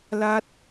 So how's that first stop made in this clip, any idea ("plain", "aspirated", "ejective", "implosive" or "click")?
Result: plain